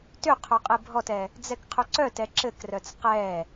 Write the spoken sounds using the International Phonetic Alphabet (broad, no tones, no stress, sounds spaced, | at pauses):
t ʏ qʰ œ qʼ e bʱ ɔ t ɛ | d͡z ɛ k qʰ ʏ ǀ œ t ɛ ǁ ɘ k r œ t͡s q ɛ